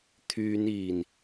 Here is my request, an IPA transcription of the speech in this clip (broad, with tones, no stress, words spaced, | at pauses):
t̪ʰyː˨˧niː˨˩n